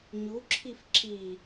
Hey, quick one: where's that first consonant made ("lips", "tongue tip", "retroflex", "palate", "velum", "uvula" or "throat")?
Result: palate